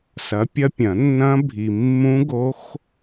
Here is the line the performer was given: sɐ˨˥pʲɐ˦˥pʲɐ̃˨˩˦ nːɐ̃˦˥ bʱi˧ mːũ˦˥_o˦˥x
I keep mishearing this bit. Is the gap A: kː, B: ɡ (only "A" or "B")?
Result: B